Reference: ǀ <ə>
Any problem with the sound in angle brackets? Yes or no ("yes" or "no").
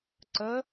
no